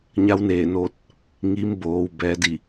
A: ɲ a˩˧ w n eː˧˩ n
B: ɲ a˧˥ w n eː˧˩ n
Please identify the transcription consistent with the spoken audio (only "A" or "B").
B